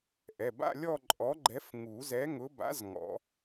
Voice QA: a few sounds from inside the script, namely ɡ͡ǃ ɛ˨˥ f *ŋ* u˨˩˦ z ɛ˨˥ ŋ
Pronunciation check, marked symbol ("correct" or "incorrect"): correct